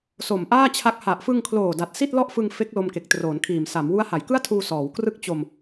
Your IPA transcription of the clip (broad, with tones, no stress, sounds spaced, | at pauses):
s o˨˩ m ʔ aː˥˩ t͡ɕʰ a˦˥ k̚ h a˨˩ ʔ f ɯ˧ ŋ kʰ l oː˨˩ d a˨˩ t̚ s i˥˩ t̚ l ɔ˥˩ ʔ f ɯ˧ ŋ f e˦˥ k̚ l o˧ m k e˨˩ k̚ t r oː˩˦ n kʰ iː˨˩ m s a˩˦ m w u˦˥ a̯ h a˩˦ j k ɯ˥˩ a̯ tʰ uː˧ s ɔː˩˦ w k r ɯ˥˩ k̚ t͡ɕ o˧ m